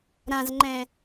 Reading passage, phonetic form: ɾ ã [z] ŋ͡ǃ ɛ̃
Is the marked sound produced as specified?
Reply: yes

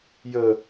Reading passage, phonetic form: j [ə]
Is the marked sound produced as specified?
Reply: yes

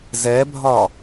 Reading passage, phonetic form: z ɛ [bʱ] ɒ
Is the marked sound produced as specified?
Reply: yes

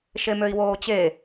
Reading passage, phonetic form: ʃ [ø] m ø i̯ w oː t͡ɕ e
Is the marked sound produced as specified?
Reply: no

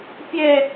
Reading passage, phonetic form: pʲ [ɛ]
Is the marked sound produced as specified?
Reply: yes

